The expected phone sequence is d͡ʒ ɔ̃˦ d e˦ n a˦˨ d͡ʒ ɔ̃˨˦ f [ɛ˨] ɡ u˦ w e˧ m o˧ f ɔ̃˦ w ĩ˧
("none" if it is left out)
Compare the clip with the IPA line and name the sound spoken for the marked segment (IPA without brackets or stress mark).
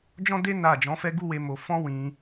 ɛ˦